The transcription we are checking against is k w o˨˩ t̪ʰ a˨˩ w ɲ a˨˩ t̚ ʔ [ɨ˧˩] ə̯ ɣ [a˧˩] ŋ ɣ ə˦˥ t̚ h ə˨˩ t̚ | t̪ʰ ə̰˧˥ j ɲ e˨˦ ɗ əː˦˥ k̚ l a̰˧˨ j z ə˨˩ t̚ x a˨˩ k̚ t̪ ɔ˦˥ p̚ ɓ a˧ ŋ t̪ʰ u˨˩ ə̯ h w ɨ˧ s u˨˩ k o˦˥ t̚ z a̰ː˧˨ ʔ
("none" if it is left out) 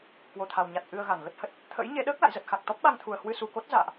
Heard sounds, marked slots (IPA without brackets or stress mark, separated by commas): ɨ˨˩, a˧˩